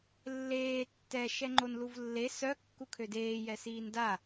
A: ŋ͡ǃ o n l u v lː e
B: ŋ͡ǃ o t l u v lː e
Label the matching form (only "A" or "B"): A